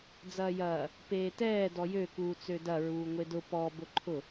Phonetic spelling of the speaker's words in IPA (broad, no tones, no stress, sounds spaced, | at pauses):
d͡z ɐː j ɐː | p eː t ɛː d ɔ j ø k uː t͡s ø d ɐ ɹ uː ŋʷ e d ʊ p ɔ b ʊ ǃʰ ʊ